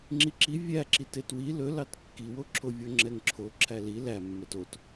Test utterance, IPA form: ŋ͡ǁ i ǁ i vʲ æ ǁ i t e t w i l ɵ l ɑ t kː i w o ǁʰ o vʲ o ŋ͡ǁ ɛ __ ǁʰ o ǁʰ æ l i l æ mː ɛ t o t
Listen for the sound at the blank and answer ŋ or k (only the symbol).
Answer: ŋ